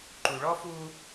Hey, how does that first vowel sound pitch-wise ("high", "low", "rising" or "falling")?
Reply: low